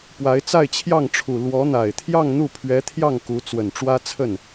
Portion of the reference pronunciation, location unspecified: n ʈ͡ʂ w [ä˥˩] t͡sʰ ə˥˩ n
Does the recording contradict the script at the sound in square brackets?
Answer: yes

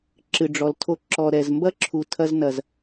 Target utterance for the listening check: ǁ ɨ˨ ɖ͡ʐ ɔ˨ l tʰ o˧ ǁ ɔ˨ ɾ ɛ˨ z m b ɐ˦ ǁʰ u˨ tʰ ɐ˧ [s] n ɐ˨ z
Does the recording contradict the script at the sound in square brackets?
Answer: yes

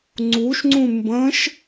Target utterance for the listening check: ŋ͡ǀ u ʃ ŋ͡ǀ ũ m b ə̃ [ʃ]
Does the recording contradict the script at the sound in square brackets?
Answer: no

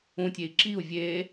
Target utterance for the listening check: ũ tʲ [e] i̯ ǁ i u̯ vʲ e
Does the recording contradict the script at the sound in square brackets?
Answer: no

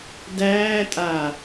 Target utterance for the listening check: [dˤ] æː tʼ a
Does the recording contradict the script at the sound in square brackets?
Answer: yes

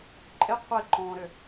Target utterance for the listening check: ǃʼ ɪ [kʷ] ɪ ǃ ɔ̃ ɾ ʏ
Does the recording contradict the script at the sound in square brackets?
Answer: yes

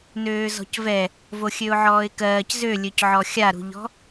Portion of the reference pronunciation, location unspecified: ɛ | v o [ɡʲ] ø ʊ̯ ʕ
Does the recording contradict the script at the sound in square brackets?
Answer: yes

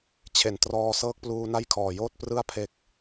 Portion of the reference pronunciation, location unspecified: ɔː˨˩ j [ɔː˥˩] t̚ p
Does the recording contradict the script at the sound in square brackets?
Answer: yes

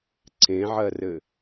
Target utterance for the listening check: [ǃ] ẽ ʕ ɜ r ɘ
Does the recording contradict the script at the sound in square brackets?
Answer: yes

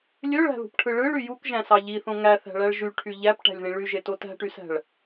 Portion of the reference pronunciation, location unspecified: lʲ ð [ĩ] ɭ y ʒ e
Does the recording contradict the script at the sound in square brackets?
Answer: no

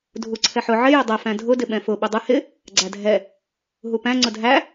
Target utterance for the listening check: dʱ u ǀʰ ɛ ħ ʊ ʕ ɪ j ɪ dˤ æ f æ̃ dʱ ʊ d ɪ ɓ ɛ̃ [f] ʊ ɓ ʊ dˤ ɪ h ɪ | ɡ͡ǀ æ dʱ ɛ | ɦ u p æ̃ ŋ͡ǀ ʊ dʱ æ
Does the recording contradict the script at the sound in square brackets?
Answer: no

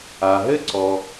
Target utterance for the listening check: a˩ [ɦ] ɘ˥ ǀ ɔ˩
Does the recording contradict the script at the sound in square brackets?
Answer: no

